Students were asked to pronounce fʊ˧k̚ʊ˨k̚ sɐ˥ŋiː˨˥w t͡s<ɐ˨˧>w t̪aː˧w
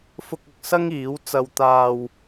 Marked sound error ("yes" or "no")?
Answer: yes